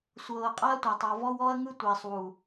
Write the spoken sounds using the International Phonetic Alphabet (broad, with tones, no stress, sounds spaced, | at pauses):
sʷ ɤː˨ qʼ a˦ ɐ̯ tʷ a˨ tˤ ɔ˨ v ɔ˧ w ɔ˧ ɐ̯ ŋ ɯ˧ tʷ iː˨ sˤ w u˨